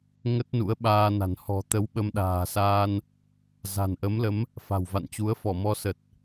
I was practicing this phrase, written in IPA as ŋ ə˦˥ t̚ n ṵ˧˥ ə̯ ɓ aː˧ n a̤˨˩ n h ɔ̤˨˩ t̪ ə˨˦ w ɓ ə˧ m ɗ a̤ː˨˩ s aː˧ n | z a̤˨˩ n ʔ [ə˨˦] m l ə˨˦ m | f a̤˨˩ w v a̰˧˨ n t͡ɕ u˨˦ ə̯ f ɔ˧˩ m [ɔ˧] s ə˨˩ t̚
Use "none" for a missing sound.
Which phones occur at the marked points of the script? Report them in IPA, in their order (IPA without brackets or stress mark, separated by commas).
ə˨˦, ɔ˧